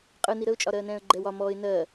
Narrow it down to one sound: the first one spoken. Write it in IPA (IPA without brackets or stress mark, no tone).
qʼ